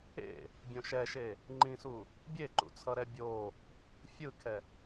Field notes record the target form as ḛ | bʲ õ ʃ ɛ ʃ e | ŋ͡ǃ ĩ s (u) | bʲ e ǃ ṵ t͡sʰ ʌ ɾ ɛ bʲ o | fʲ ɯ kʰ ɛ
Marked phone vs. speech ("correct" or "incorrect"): correct